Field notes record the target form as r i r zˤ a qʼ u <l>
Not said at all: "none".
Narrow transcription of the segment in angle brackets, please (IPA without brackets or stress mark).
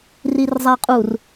r